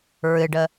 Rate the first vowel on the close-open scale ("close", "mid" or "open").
close